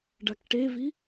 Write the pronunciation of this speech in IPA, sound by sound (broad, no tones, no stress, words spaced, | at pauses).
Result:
ɖakʈevi